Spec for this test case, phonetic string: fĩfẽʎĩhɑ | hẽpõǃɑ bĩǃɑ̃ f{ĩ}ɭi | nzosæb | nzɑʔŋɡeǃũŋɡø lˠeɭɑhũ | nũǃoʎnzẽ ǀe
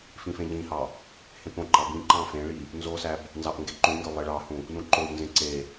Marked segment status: incorrect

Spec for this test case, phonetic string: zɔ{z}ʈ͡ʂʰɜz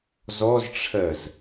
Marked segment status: correct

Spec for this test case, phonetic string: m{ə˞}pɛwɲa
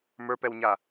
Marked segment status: correct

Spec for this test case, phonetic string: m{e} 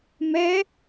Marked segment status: incorrect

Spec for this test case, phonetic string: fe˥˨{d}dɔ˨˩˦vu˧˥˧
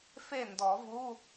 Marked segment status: incorrect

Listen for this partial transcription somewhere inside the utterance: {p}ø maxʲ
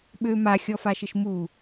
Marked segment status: incorrect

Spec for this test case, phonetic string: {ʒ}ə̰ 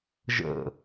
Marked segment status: correct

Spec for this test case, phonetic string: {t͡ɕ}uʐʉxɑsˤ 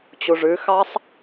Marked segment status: correct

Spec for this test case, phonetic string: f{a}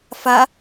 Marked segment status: correct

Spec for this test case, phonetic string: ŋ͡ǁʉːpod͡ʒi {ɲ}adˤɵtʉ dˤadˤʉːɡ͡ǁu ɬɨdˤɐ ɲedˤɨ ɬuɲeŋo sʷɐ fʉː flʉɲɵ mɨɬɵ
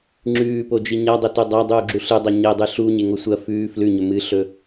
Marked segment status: correct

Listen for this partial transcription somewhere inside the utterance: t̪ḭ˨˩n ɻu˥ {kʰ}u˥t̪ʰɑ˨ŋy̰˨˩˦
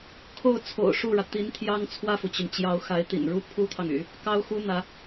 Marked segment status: incorrect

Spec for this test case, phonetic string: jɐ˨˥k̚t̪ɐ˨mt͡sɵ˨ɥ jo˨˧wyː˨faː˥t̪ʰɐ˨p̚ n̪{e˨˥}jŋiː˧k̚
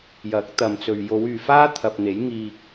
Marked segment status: correct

